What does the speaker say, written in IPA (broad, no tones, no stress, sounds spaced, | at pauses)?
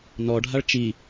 n ɔ ɖʱ a ɭ t͡ʃ i